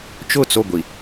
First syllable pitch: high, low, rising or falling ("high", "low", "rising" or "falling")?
falling